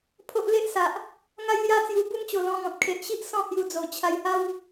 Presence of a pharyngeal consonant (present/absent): absent